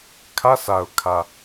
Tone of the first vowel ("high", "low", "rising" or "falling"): high